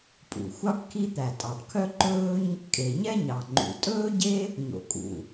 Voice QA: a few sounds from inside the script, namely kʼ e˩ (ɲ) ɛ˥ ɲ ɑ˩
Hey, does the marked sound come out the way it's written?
yes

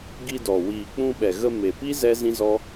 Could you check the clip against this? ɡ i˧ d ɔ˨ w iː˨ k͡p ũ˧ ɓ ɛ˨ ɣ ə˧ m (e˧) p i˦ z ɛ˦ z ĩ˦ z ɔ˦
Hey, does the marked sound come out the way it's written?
no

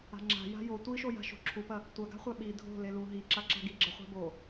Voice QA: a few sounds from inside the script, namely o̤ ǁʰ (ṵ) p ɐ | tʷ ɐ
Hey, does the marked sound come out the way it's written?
no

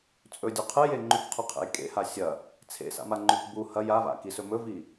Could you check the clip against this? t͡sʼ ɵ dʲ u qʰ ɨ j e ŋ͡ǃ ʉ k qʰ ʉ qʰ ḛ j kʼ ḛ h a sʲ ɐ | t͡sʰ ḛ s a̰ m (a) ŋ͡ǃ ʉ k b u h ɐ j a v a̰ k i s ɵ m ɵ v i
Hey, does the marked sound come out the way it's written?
yes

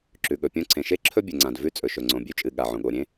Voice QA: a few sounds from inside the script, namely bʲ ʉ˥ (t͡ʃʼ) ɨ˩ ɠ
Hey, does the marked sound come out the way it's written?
yes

